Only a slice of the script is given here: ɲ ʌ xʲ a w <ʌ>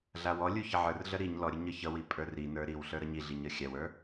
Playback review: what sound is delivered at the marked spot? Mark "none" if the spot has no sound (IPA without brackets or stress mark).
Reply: ə˞